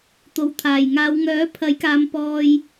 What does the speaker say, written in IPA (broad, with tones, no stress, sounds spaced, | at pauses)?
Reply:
t̪ o˨˩ w t̪ʰ aː˨˩ j ŋ aː˨˧ w ŋ œː˨˥ pʰ ɐ˨˥ j k aː˨˧ m p ɔː˧ j